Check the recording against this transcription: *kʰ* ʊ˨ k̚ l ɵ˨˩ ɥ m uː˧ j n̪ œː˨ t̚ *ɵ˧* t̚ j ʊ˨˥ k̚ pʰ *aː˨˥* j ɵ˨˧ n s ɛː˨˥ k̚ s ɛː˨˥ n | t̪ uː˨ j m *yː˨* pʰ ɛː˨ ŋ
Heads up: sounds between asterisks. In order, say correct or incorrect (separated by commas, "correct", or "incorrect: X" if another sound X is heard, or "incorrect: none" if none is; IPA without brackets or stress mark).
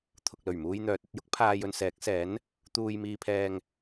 incorrect: t̪ʰ, correct, incorrect: aː˨, incorrect: iː˨